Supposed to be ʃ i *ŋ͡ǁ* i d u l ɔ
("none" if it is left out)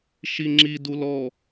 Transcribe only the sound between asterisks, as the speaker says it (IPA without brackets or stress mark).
ŋ͡ǁ